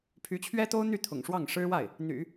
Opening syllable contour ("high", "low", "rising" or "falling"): rising